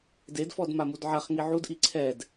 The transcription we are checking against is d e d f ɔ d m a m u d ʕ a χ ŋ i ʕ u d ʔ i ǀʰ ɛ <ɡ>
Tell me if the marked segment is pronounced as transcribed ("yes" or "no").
no